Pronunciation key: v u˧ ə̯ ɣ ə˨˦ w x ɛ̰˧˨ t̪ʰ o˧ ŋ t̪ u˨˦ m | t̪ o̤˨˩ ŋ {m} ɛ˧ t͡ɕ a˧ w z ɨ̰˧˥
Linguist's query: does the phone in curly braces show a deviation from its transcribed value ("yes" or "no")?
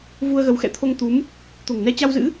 yes